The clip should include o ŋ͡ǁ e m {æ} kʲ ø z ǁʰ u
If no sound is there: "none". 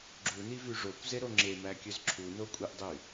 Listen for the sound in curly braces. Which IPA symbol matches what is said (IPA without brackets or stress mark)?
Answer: æ